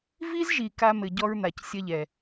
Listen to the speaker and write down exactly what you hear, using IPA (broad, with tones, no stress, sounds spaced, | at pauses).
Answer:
v i˦ z ʒ i˨ k a˦ m ɘ˨ ɟ ɔ˦ ɹ n̪ a˨ c sʲ ɐ˦ ʎ ɛ˨